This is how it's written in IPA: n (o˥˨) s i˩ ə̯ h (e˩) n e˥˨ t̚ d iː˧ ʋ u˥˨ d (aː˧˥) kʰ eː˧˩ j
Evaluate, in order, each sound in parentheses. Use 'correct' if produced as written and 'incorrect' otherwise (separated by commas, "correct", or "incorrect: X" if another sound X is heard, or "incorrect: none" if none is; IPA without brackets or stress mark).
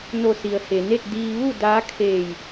incorrect: o˧˩, correct, correct